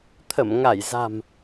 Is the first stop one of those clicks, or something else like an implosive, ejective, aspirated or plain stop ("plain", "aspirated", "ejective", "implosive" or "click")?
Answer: aspirated